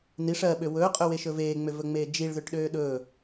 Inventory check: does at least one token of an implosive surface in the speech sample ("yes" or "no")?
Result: yes